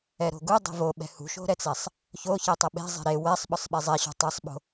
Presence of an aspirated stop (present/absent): absent